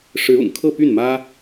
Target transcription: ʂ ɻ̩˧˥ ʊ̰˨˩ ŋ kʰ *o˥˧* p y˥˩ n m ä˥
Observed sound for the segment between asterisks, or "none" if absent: ɤ˥˧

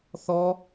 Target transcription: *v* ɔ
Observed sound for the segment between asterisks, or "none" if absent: θ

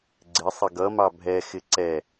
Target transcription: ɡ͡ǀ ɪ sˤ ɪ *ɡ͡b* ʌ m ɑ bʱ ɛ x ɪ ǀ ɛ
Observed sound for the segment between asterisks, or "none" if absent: ɡ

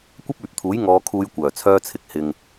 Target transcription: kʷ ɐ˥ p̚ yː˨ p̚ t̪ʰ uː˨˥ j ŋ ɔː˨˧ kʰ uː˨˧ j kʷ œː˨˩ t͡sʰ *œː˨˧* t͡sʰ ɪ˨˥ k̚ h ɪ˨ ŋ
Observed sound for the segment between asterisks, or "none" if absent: œː˧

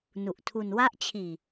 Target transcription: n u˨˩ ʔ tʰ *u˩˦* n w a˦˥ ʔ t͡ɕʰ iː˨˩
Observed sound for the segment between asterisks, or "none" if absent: u˧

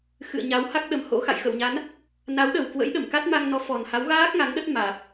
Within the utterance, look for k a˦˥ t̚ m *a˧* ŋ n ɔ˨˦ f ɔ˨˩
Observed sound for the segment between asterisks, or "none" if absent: a˧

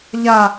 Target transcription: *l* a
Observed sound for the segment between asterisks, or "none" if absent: ʎ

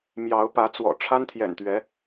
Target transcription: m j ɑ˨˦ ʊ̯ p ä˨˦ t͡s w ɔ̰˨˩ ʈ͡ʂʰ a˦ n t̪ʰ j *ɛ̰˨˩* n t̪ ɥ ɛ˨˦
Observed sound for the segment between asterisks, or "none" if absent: ɛ̰˨˩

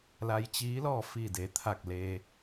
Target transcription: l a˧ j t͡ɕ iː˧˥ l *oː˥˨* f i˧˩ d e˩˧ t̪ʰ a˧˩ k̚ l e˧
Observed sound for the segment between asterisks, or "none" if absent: ɔː˥˨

